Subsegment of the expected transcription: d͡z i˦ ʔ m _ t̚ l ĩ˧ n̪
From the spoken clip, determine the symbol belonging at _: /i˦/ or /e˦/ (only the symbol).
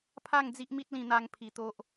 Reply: i˦